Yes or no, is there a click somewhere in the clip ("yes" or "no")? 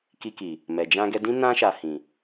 no